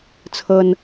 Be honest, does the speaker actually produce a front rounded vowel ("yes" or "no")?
no